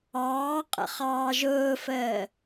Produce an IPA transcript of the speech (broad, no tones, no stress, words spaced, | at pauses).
ɑːqʼə̰χɑː ʒʊːfəː